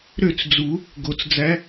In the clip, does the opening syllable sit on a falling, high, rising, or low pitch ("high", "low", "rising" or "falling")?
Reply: falling